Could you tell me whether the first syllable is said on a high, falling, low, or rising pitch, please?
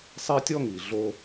high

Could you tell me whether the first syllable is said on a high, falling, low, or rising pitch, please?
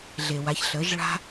low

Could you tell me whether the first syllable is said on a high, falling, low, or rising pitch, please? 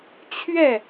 falling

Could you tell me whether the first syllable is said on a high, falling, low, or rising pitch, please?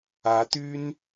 rising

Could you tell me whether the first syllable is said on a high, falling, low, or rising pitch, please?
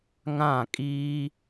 falling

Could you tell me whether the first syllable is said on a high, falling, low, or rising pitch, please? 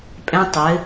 high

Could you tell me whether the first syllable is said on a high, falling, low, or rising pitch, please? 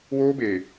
high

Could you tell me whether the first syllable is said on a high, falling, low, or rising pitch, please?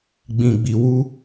low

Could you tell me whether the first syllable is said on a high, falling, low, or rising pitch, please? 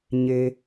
high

